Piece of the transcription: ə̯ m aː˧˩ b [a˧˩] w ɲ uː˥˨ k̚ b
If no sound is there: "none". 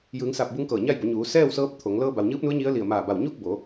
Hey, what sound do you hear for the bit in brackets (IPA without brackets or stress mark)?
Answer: a˧˩